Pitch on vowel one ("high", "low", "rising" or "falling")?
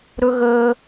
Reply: high